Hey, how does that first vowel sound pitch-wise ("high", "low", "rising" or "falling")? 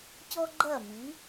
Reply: high